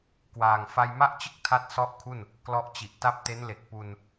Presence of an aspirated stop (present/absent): present